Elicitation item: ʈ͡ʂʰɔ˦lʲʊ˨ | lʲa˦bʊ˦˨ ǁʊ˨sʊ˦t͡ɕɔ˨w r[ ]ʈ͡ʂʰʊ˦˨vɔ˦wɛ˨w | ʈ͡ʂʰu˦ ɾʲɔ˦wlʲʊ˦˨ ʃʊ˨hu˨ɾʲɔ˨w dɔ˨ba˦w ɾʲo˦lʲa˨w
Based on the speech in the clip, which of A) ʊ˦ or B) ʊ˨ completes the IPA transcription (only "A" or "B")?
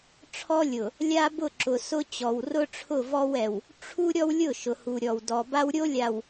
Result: A